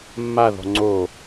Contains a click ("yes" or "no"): yes